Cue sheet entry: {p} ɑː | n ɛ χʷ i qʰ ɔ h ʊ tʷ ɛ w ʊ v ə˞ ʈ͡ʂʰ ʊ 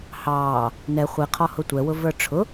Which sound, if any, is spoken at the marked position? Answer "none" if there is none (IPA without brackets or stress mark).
h